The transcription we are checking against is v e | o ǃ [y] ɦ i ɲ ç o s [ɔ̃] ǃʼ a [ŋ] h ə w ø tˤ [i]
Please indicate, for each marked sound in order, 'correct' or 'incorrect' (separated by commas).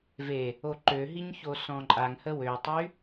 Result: incorrect, correct, correct, incorrect